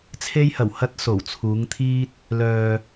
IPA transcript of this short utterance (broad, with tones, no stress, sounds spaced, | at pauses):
t͡sʰ e˧ j h ɐ˨˩ w h ɐ˧ t̚ s o˨˩ w t͡sʰ uː˨˧ ŋ t̪ʰ iː˧ t̚ | l œː˨